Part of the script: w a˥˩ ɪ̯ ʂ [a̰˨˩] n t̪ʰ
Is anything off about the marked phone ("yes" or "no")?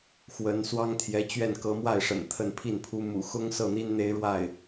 yes